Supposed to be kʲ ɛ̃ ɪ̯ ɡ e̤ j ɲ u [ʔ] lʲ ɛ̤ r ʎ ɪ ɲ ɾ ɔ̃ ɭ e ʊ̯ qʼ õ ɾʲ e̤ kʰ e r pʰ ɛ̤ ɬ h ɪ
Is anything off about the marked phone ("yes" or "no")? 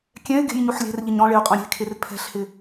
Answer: yes